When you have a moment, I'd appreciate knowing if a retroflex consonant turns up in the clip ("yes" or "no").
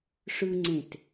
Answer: yes